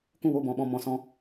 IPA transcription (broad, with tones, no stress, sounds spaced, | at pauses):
k ũ˦˨ w o˦˨ b ɔ̃˨ ɓ ɔ̃˦˨ m ɔ̃˨ s ɔ̃˧